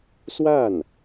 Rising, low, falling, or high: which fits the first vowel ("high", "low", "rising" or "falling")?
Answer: falling